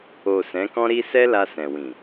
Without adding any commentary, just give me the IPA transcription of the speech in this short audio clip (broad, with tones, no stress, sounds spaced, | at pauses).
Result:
o˨ s ɛ̃˨˦ k ɔ̃˦ ɾ i˦ s ɛ˦ l a˧ s ɛ̃˨ w ĩ˨